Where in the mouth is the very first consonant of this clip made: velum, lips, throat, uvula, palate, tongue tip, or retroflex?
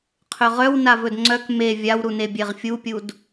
uvula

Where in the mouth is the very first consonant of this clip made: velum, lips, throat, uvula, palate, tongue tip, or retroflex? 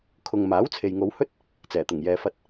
velum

